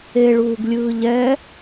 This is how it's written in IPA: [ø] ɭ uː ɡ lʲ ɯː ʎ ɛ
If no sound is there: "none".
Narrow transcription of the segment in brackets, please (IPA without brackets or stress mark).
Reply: e